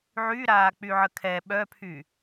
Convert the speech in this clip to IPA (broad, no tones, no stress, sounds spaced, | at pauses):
ʕ y ɾ aː k͡p y ʕ ə kʰ ɛ ɓ œ pʰ y